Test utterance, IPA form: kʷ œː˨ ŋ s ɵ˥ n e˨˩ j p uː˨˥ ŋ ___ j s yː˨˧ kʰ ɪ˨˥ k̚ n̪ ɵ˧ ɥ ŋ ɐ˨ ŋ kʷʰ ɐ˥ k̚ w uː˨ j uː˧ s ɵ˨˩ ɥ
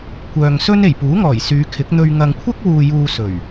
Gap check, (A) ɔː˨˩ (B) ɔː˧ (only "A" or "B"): A